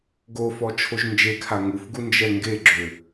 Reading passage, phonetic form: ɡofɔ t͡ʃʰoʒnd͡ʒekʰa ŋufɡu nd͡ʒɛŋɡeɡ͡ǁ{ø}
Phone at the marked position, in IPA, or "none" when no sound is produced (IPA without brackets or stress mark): ø